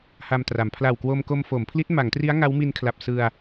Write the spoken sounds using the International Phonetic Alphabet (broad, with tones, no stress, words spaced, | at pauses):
ha˧mtra˩˦m pʰla˨˩wkwo˧mko˧m fo˩˦mpʰli˦˥t̚ ma˩˦ŋtri˦˥a̯ ŋa˦˥wmi˧nkʰla˨˩p̚ sɯ˧a̯